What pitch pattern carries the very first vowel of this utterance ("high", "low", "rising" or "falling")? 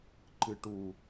low